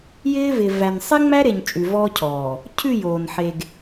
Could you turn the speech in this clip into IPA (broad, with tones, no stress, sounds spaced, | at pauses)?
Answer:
j ɪː˦ v ɪ˨ v æ˨ n sˤ e˦ ŋ͡m æ˦ ɾ e˨ ɲ t͡ʃʼ ʉ˨ v ɔː˦ cʰ ɔː˨ | cʰ ʉ˦˨ j oː˨ n ħ e˨ ɡ